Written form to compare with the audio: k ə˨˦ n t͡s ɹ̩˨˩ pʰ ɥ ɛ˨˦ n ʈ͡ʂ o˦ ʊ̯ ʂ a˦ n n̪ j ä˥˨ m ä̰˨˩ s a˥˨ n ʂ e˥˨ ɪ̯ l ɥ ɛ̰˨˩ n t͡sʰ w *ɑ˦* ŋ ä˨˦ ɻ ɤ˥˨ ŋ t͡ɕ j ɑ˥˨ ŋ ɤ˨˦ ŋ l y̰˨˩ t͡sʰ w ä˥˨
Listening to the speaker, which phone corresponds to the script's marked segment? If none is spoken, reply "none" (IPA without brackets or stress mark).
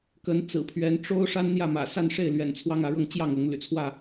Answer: ɑ˦